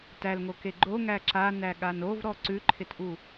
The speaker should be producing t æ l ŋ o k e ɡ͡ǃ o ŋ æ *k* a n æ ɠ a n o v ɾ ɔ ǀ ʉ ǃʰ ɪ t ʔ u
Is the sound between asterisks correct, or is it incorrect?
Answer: incorrect